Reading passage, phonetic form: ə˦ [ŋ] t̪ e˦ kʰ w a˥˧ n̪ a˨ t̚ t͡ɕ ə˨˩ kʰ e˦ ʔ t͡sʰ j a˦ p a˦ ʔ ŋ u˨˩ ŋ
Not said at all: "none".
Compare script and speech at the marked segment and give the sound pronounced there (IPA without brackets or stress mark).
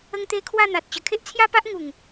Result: ŋ